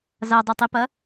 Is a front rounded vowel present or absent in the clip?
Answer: present